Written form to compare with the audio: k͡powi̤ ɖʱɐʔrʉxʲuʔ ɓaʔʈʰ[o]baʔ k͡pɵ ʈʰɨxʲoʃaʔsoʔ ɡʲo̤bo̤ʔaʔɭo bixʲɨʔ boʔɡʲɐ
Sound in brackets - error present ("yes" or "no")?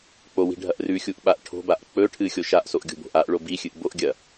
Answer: yes